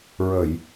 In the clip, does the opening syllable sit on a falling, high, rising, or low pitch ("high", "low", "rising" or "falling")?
low